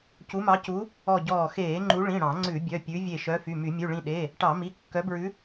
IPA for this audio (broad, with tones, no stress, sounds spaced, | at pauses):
c u˨˦ m ɑ˨˦ c u˨˦ | ɔ˧˩ ɟ ɔː˧˩ x eː˧˩˧ ŋ͡ǃ u˨˦ ɭ ĩ˩˧˩ ɽ ɑ̃˧˩˧ ŋ͡ǀ ʉ˧˩˧ bʲ œ˩˧˩ pʲ ʉ˨˦ vʲ e˧˩ ʃ œ˨˦ f y˩˧˩ m y˧˩˧ mʲ ʉ˩˧˩ ɭ ĩ˧˩ ɗ e˩˧˩ | ʈ ɑ˧˩˧ m i˩˧˩ kː œ˨˦ b ɹ ʉ˨˦